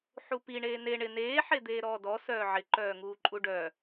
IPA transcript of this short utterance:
ħupi ɳeːne ɳɪ neː ħed̪eːɾɔːdɔ sœːʕɪ ǃœːŋuːǃʼuɖœ

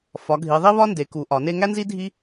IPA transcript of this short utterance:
fɒ˨˦ɡʱi˨˦ðˤi˥ βɒ˥nde˨˦ku˨˦ ʔɒ˨˦ne˥ ŋæ˥nzi˥ dʱi˥

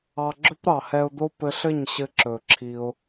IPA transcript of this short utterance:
ɑ˧ ɡ͡ǁɵ˦pɾɑ˨hɛ˧ʊ̯d̪o˦ pɘ˧ɬɘ˦˨ɲɕɘ˧ ǁɵ˨ǁʰi˧ʊ̯

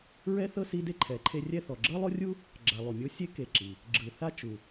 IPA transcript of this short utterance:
ɹɛ˥θɤ˥si˦de˥ ǃʰɛ˩ǃʰe˦rʲɛ˥ θɔ˩ɡ͡ǁɤ˥lˠo˥rʲu˥ | ɡ͡ǁa˨lˠu˩mʲo˦sʲe˥ ke˨ǁi˩ | ɡ͡ǁɯ˨ θa˦ t͡ʃu˩

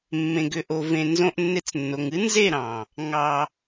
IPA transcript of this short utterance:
mːẽ˨ɡʏ˨ʔo˨ vẽ˨nzõ˧ʔnːe˧t͡snːo˨ŋ ɨ˦nze˦˨ɾɑ̃˨ | ŋɑ˨

